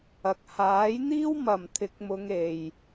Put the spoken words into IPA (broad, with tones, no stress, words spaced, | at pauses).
ɐ˨k̚haː˨˥jn̪iː˥w mɐ˨mt̪ʰɪ˧k̚ mʊ˧ŋ e˨j